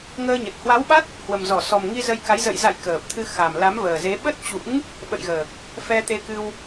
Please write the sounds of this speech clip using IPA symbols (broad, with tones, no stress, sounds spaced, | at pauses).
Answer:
ŋ əː˧ ɲ ə˨˩ t̚ h w a˨˦ w ɓ a˦˥ t̚ | h w ə˨˩ m z ɔ˧˩ s ɔ˨˩ m ŋ i˧ z ə˧ j k a˨˦ j z ə̰˧˨ j z a̰˧˨ j k əː˨˩ p̚ t̪ʰ ɨ˧ x a˨˩ m l a˨˦ m v əː˨˩ z e˨˦ ɓ ə˦˥ t̚ t͡ɕ ṵ˧˥ ŋ | ɓ ə̰˧˨ j ɣ əː˨˩ k̚ | f ɛ˧ t̪ e˧ k ɨ˧ w